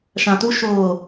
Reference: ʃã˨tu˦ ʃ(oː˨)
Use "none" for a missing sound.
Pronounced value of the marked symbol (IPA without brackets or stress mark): oː˨